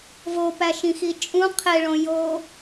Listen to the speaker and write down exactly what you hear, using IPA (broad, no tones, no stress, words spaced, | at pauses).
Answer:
vopæʃĩxi t͡ʃʼũ qʰeɭõ jo